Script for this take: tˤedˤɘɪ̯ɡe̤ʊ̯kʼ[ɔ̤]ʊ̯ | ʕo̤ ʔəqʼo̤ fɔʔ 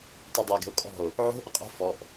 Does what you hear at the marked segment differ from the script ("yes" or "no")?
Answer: no